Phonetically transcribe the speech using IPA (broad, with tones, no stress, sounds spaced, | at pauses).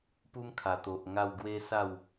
p u˦ m kʰ a˨˩ t̪ o˨ ʔ ŋ a˥˧ w ɡ w e˦ s a˥˧ w